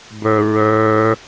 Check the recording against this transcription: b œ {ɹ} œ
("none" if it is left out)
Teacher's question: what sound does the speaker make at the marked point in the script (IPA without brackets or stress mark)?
ɹ